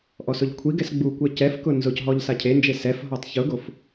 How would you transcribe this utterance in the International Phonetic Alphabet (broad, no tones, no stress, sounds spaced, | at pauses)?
ʔ ɔ s ʊ ʎ kʷʰ i ɡ ɛ s ɡ͡b u kʷ ɛ c ɛ f k ʊ n z ʊ c ɦ ɔ ʎ s a cʰ e n d͡ʒ e s ɛ f ɦ ɔ tˤ ç ʊ ɡ o f